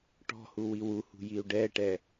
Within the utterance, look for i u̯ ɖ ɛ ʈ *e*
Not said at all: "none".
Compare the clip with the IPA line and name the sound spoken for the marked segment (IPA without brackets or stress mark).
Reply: ɛ